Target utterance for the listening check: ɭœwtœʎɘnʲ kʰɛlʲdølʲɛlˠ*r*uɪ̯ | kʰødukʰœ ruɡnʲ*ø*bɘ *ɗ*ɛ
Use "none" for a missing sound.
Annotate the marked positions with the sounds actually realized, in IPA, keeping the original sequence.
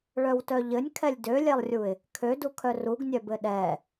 rʲ, œ, ɗ

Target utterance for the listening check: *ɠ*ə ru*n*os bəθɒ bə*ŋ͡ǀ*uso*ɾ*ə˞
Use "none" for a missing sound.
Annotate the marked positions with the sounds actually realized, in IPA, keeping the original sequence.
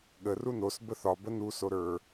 ɠ, n, n, ɾ

